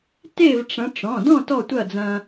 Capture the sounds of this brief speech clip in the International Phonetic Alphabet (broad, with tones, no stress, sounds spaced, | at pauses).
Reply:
t e˥˨ v ʈ͡ʂ ɐ̃˨˦ ʈ͡ʂ ɔ̃˩˧˩ d ɔ̃˥˨ t ɔ˥˨ tʷ ɐ˥˨ d͡z ɐ̃˦